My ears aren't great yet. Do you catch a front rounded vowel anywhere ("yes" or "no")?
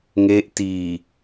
no